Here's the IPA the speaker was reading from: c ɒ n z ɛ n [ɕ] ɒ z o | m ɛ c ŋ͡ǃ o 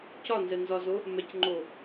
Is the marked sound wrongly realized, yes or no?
yes